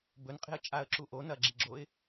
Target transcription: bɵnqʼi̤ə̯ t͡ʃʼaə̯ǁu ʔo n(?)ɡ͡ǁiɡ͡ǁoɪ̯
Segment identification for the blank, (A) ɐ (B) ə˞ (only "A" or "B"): A